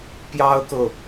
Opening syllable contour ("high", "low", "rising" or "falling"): high